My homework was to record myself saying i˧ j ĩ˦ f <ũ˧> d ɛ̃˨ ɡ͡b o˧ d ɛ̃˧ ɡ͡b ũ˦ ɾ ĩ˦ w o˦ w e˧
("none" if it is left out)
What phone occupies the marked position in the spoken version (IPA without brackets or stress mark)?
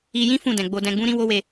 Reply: ũ˦˨